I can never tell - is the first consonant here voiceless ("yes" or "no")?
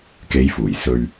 yes